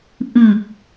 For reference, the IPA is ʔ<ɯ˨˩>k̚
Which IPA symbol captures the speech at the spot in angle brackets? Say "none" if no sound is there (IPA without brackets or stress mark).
ɯ˨˩